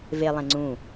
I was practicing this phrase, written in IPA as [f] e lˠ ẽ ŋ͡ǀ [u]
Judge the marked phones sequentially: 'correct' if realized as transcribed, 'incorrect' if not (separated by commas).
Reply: incorrect, incorrect